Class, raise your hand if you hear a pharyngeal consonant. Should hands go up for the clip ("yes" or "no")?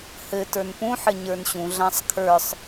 yes